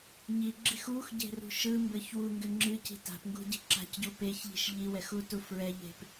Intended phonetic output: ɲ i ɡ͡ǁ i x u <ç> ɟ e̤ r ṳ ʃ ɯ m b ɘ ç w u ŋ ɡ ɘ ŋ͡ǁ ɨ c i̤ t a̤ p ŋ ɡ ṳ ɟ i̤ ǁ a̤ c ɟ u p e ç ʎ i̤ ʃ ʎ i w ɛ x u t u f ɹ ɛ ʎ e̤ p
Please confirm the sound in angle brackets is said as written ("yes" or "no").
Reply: no